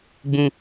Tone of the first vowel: high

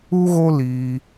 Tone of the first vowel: high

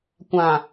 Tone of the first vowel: low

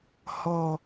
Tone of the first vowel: low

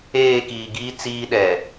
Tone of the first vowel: falling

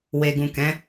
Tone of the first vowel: low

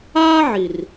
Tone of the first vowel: high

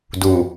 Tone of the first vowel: low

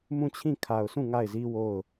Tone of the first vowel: falling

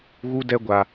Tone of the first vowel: high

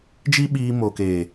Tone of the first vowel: high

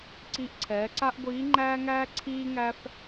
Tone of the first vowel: rising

